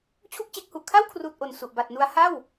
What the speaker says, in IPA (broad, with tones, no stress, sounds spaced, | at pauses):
t͡ɕʰ u˥˩ k̚ t͡ɕ e˦˥ k̚ h u˨˩ ʔ kʰ a˥˩ w kʰ r uː˨˩ t̚ ʔ o˨˩ n s u˨˩ ʔ b a˨˩ t̚ n u˦˥ a̯ h a˥˩ w